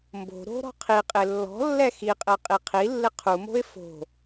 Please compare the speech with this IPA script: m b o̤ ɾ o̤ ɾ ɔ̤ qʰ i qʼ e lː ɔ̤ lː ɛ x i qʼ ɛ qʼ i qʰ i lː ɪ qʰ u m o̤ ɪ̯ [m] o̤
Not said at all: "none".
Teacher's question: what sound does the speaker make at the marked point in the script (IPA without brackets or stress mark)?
f